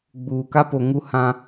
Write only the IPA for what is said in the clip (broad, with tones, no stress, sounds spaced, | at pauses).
ɡ͡b uː˨ k a˦ p o˨ ŋ u˦ h ã˦